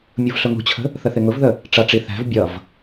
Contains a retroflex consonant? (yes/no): yes